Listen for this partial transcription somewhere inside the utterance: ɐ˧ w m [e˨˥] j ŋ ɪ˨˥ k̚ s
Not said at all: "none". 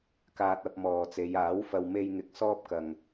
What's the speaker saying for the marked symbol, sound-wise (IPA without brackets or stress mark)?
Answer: e˧